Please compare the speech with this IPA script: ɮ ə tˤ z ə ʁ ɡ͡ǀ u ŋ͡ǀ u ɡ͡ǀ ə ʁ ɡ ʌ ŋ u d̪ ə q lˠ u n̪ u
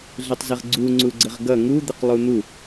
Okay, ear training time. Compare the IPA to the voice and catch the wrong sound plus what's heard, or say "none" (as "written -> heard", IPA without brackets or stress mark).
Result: none